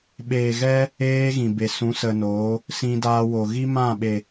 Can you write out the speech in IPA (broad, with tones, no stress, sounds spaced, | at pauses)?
ɓ eː˨ ɣ ɛ˧ | eː˦ ɣ ĩ˨ b e˨ s ũ˨˦ s ə˨ n oː˨˦ | s ĩ˧ d aː˧ w o˨ ɣ i˦ m ã˦˨ ɓ e˨